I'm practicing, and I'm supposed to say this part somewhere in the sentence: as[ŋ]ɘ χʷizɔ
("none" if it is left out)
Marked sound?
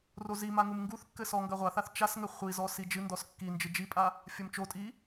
ŋ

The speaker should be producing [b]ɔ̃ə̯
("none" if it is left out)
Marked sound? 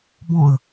b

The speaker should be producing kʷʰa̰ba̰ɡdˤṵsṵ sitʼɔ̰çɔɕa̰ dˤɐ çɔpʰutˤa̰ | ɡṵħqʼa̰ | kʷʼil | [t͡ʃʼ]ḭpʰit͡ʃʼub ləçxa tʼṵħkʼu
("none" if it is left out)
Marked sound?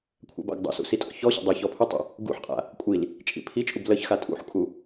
t͡ʃʼ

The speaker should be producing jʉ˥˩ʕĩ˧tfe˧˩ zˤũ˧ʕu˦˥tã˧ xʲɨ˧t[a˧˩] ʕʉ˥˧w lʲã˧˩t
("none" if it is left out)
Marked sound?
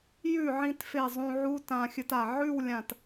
a˧˩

